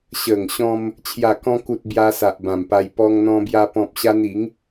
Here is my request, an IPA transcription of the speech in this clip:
ɕ ə˨˩ ŋ ɕ ɔ̃˧ m | t͡ɕʰ j a˨˩ k ɔ̃˧ k u˨ t̚ b j a˧ s a˨ ʔ b ã˨˩ m p a˧ j p ɔ˧ ŋ n̪ ɔ̃˧ b j a˧ p ɔ̃˨ p̚ ɕ a˧ n i˨˦ ŋ

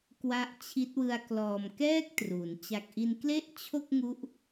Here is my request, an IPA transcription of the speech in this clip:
k w a˦˥ ʔ t͡ɕʰ i˦˥ t̚ w ɯ˧ a̯ k l ɔː˨˩ m k ɛː˥˩ k̚ t r u˩˦ n t͡ɕ a˨˩ k̚ ʔ i˧ n k l e˥˩ ʔ t͡ɕʰ o˥˩ k̚ ŋ u˦˥ ʔ

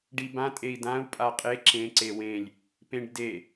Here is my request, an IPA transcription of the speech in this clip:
ɖ i b ã tʼ e i̯ d ã u̯ pʼ a qʼ e ǁ ẽ ǀ e w ẽ lʲ | p ẽ ɖ d e

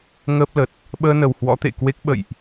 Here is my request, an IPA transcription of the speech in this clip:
ŋ əː˦˥ p̚ l ə˨˩ t̚ | ɓ əː˧ n ə˨˩ w h w ɔ̰˧˥ t̪ ḛ˧˨ k w e˦˥ k̚ ɓ ə̰˧˨ j ʔ

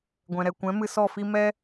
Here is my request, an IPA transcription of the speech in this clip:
ɡʷ ɛ̃˨ ɾ ɛ˨ kʷ ɛ̃˨˦ m ɨ˧ s ɔ˦˨ f i˦ m ɛ˦

